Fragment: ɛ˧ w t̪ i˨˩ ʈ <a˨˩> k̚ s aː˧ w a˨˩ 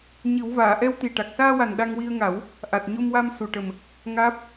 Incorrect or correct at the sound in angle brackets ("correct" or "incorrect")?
correct